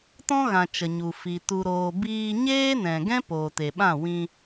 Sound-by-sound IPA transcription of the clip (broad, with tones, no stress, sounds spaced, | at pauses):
t ɔ̃˦ ɣ ã˨ t͡ʃ ə˨ ɲ u˨ f i˨ t u˨ ɾ oː˨ b iː˧ ɲ eː˦ n ɛ̃˨ ɡ ɛ̃˦ p oː˨ t e˨ ɓ ã˦˨ w ĩ˧